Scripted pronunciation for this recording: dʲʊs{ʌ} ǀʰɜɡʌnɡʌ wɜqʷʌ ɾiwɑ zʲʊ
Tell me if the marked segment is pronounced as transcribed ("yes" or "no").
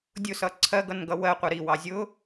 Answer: yes